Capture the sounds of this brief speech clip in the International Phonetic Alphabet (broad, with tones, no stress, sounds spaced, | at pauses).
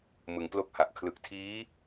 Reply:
m ɯ˩˦ ŋ p l o˥˩ k̚ h a˨˩ ʔ kʰ l ɯ˨˩ k̚ tʰ iː˦˥